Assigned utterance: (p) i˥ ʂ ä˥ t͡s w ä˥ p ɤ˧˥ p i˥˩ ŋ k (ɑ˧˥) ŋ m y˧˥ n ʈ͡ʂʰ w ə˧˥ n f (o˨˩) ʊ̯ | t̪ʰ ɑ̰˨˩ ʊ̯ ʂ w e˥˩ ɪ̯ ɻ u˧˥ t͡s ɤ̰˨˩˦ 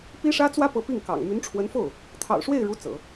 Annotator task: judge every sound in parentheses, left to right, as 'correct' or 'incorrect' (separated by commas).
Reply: correct, incorrect, incorrect